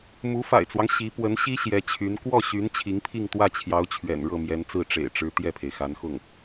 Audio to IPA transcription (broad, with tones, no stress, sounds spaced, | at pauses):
m u˧˥ f a̰˨˩ ɪ̯ t͡s w ɑ˦ ŋ ɕ i˧˥ p w ə˧˥ n ɕ i˥ ɕ j ɛ˧˥ t͡ɕʰ y˧˥ n k w ɔ˥˩ ɕ y˧˥ n t͡ɕʰ i˧˥ ŋ pʰ i˥˧ ŋ t̪ w ä˥˩ t͡ɕʰ j ɑ˧˥ ʊ̯ t͡ɕʰ ɥ ɛ̰˨˩ n ɻ ɤ˥˩ m j ɛ˧˥ n t͡s ɹ̩˥˩ ʈ͡ʂ ḛ˨˩ ɪ̯ ʈ͡ʂ ɻ̩˧˥ t̪ j ɛ˥˩ pʰ e˩ ɪ̯ x a˧˥ n x ʊ˥˩ ŋ